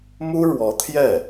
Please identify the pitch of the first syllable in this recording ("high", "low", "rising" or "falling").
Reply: high